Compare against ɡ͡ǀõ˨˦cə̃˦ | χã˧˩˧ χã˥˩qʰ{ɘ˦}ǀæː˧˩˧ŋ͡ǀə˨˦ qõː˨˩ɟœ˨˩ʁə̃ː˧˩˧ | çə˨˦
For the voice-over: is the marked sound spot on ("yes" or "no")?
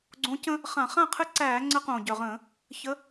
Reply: yes